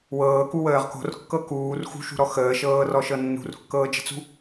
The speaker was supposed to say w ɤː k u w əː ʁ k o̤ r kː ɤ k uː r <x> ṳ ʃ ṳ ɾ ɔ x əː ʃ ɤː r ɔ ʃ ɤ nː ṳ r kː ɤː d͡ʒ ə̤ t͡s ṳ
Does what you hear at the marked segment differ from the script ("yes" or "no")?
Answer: no